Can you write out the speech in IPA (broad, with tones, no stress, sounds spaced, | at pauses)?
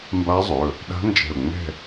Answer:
m b a˦˥ zˤ ɵ˩˧˩ | ɗ a̤˦˥ n d͡ʒ ɛ̤˧˩ ʊ̯ ŋ͡m ɛ̤˥˧